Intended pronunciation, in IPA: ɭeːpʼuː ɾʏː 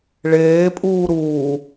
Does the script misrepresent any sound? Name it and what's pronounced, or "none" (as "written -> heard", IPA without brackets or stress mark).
ʏː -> uː